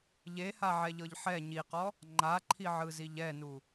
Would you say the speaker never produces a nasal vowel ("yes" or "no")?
yes